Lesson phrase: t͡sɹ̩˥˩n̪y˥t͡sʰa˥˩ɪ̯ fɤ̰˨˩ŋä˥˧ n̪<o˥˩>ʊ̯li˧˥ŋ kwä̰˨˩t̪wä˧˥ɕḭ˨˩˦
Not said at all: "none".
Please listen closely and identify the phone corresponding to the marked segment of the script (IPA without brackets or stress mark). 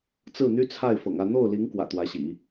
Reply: o˥˩